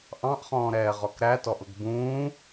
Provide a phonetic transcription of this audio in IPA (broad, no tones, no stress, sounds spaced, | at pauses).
ʔ ɑ̃ ʔ χ ɔ̃ː ɾ ɛː ʁ ɔ k ɾ æ t ɔ ʔ ʊ ɡ b ũː